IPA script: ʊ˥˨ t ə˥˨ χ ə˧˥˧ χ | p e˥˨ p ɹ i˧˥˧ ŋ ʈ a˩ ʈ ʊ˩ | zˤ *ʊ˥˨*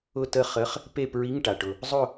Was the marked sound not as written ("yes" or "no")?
no